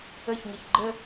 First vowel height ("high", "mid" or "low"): mid